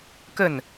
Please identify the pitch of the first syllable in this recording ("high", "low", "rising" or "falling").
falling